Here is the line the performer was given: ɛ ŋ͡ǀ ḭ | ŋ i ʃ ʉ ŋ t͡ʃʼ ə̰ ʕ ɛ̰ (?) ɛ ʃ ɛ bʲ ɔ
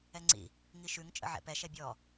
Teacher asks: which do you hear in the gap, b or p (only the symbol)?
p